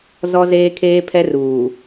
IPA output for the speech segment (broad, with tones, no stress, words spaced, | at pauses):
zɔ˦zeː˦kʰeː˦pʰɛ˦r uː˨